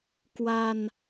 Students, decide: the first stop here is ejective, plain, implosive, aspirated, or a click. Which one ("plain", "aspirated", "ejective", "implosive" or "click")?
plain